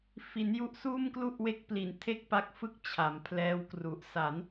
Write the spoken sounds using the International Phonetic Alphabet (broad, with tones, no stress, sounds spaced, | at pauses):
f i˩˦ n j u˦˥ ʔ s uː˥˩ m k l u˥˩ ʔ w e˦˥ k̚ p l i˨˩ n tʰ e˥˩ k̚ p a˦˥ k̚ f ɯ˥˩ k̚ t͡ɕʰ a˩˦ m pʰ l ɛː˦˥ w k r u˨˩ ʔ s a˩˦ n